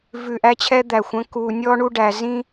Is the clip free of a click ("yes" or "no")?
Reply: yes